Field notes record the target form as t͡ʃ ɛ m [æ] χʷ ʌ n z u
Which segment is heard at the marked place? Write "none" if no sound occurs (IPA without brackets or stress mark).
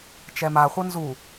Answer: a